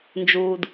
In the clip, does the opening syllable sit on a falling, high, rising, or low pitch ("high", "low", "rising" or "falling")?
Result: low